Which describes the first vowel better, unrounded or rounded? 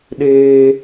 unrounded